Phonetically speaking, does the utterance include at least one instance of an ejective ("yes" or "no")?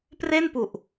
no